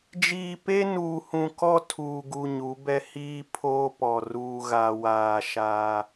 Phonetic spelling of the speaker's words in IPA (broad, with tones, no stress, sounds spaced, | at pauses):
d͡ʒ iː˨ p e˦ n uː˨ h ũ˨ k ɔ˦ tʰ uː˨ ɡ u˨ ɲ u˨˦ b ɛ˦ h iː˦ pʰ oː˦ p ɔ˨ r uː˨ ɣ aː˨ w aː˨ ʃ aː˦